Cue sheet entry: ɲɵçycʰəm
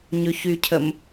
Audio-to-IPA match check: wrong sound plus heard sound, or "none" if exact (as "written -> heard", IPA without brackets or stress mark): none